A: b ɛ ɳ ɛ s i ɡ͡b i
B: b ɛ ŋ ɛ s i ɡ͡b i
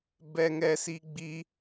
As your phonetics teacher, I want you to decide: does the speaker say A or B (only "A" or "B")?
B